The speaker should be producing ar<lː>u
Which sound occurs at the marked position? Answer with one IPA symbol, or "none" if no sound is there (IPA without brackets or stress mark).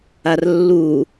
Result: lː